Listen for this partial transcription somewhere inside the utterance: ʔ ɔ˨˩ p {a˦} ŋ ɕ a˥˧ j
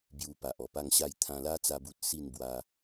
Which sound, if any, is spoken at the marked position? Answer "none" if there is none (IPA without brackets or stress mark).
a˥˧